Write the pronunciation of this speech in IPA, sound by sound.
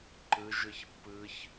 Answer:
ǃ ɯ ʒ ɯ ç pː ɯ ç

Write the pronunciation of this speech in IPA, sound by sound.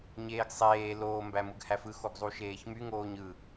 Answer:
ɲ eː ɡ sˤ eː l oː m b æ m ɯ ɡ h æ f ɯ x o ɡ zˤ u ʃ eː ç m y ŋ oː ɲ ɯ

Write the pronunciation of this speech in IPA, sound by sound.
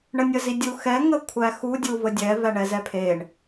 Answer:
ɳ ə nʲ ə z i dʲ u x ɛ ŋ ə kʷʰ æ x u dʲ u v ə dʲ ɛ v æ ɳ ɛ z ɛ pʰ e ɳ

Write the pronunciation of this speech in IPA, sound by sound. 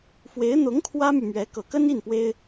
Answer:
f w e˧˥ ɪ̯ n̪ ʊ˧˥ ŋ kʰ w ä˥ m y˨ m ɥ ɛ˧˥ k ɤ˨˩ k ə˥ n i˥˩ n p w e˥ ɪ̯

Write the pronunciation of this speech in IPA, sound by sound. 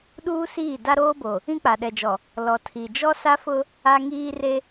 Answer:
ɗ uː˦ s iː˦˨ d a˦ ɾ oː˦ b o˨ | ĩ˦ k͡p a˨ ɗ ɛ˨ d͡ʒ ɔ˨ | l ɔ˨ tʰ i˨ d͡ʒ ɔ˦ s a˦ f ʊ˦ | a˦ ŋ iː˦ r e˦

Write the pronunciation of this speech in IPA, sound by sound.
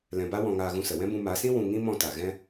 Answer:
l ɛ̃˧ b a˦ w ɔ̃˧ ŋ aː˧ ɣ ũ˧ s ə˨ w ɛ̃˦ b ũ˧ m a˨˦ s ĩ˦ w ũ˧ ŋ ĩ˦ m ɔ̃˧ t a˨ ɣ ɛ̃˦

